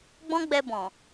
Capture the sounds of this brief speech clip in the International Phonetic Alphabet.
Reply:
ɡ͡bɔ̃˦ɡ͡bɛ˧ bɔ̃˨

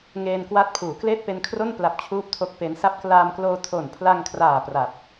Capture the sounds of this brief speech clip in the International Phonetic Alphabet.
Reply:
ŋeː˧nkwa˦˥t̚pʰuː˩˦ kleː˥˩t̚pe˧nkʰro˥˩npla˨˩p̚ t͡ɕʰuː˥˩p̚tʰo˥˩k̚pe˦˥n sa˦˥p̚klaː˧mkloː˧ tʰo˨˩npʰla˧ŋkʰraː˨˩ pra˨˩p̚

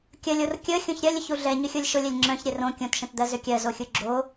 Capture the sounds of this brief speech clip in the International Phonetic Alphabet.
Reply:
kʲəlʲor kʲə xʲõçɾʲɜlʲ ʏçuɮɛ ɲʏxʲolʲʃʊlʲɛlʲ ŋ͡ǁœ̃ç ɾʲɛrõ kʲõtʃə̃td̪ɜ zʏkʲɜ zoxʲuɡ͡ǁo

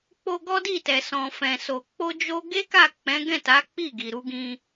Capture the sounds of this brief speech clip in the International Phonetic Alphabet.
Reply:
k͡po˧ɡɔ˦di˦˨tɛ˨ sɔ̃˨fɛ̃˨ so˨ k͡po˧d͡ʒo˧ ɡe˦ka˦˨ k͡pɛ̃˨˦ɡɛ̃˦˨ ta˨˦ k͡pi˦˨ɡi˨ɾu˧ɡĩ˧

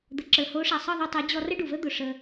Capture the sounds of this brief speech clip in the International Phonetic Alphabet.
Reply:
d̪ə˨ǁə˞˨ho˨˦ʂa˨ sˤɤ˦˨ðˤu˧tˤɤ˨˦ d͡ʑɔ˧rə˦ɖu˨və˦ d̪ʊ˨ ʂə˧

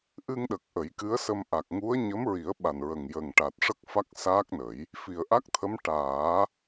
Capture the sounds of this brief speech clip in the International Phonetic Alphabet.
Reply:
ʔɨ˧ŋɗə˨˩k̚ ʔə˨˩˦jkɨ˧˥ə̯sə˧m ʔa˨˩k̚ŋu˧˥ə̯ ɲə˧˥mɹi˨˩˦ə̯ɓa˨˩nɹə˨˩ŋ jə˨˩ŋʈa˨˩t̚ ʂə˦˥k̚fa˦˥k̚ saː˦˥k̚nə˨˩˦j | fi˨˩ə̯ ʔa˦˥k̚t̪ʰə˧˥m ʈaː˨˩˦

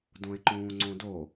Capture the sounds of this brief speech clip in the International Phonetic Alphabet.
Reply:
dõe̯ǃũːŋ͡ǀõdo

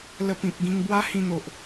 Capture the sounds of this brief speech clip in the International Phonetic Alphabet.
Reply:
lə˧ pĩ˨p̚ɡĩ˧ŋ bwa˦hĩ˧n̪o˨ʔ

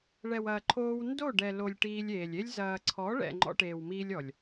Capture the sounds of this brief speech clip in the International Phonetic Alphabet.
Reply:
ɭɛ˨wɐː˨ ǃʰoː˧wndo˦˨ɖɛ˨lo˨lʲ ʈiː˧lʲeː˨lʲe˦lʲ zɐː˨ǀʰɔ˨˦ɭɛ̰˨ ŋ͡ǃɔ̰˧ʈeː˨wmiː˧lʲɔ˨lʲ

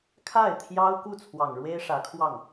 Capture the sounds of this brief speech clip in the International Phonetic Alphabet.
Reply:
kʰa˥˩ɪ̯t̪ʰjɑ˥ʊ̯ku˥˩ t͡sʰwɑ˨˩ŋɻwe˥ɪ̯ʂä˧˥kʰwɑ˥˩ŋ

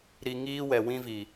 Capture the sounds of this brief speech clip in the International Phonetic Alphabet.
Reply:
ɾi˧ ŋiː˦wɛ˨wĩ˦ vi˨

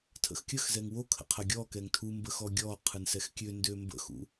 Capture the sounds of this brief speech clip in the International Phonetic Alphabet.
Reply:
tʰə̰xkʲəxzɛŋ wokʰə̰ qʰɐɡʲɔkɛŋ tʰumbə xɔɡʲɔqʰɯn sɛxkʲøndø mbə̰xṵ

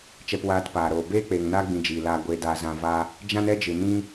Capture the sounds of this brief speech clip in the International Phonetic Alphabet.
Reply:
t͡ʃɛ˧pwaː˧tpaː˨ɾoː˨ beː˦k͡peː˨ŋnaː˦ ɡ͡bĩ˧d͡ʒiː˨laː˧ ɡʷeː˧daː˧zã˧va˦ | d͡ʒã˦nɛ˦d͡ʒɨ˨ nĩ˧

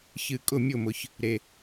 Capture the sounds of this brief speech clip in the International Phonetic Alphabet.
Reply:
çɨ˨ kʼʊ˦˨mʲʊ˦˨mʊ˨ç | ɾe˨

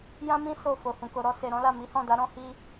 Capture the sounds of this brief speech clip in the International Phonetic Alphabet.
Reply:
jã˦mĩ˦ so˦˨ fo˨hũ˨ ko˨ɾɔ˧ se˨ɾɔ̃˨˦la˦˨ mi˨˦hɔ̃˦˨da˨˦ ɾɔ̃˦ hi˧

